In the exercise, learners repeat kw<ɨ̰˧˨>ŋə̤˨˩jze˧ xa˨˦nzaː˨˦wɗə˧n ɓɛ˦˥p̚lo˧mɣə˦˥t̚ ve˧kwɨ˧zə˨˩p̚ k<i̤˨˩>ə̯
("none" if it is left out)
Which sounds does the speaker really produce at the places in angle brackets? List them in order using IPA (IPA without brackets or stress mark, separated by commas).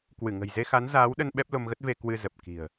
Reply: ɨ˧˩, i̤˨˩